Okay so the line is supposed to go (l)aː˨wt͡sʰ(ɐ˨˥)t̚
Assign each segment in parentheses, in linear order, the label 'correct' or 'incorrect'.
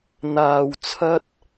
incorrect: n̪, incorrect: ɐ˥

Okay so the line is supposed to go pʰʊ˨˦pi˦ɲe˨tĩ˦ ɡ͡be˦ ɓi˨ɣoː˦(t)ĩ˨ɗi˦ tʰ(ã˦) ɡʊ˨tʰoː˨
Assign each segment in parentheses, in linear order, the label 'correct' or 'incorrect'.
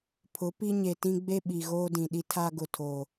incorrect: d, incorrect: a˦

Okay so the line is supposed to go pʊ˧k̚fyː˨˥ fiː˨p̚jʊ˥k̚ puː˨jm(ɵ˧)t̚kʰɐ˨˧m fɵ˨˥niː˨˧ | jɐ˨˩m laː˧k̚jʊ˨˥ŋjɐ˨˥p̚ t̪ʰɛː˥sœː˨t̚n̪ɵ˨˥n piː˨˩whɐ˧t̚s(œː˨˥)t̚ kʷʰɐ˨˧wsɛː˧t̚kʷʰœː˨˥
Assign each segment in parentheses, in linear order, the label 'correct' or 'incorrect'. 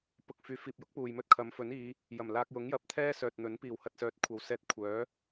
incorrect: ɵ˥, correct

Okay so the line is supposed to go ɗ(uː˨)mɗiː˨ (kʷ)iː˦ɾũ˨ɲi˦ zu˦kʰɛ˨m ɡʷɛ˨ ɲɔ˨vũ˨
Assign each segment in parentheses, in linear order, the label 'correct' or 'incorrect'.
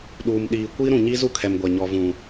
correct, correct

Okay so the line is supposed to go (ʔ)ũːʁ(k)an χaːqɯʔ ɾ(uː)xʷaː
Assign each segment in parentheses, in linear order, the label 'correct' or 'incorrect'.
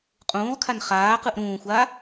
incorrect: qʼ, incorrect: kʰ, incorrect: ũː

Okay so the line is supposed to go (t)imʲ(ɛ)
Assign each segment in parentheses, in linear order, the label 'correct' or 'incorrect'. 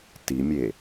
correct, incorrect: e

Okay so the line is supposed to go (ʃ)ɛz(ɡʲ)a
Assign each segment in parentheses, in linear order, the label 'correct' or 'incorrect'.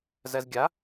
incorrect: z, correct

